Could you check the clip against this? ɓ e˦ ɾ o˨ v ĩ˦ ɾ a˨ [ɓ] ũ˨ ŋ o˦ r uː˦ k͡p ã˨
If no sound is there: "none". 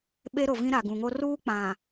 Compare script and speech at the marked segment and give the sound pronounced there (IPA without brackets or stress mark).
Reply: ɡ